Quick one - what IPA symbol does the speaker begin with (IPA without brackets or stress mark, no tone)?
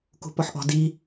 k